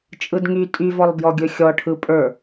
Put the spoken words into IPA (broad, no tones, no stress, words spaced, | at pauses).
t͡ʃʼɯdŋy tʼyvɔlˠbjɔ ɡʲɵxʲɔ ʈʰɯpʼə˞